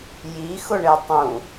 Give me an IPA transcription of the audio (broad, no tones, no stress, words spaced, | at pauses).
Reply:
jixʊɳe tˤũ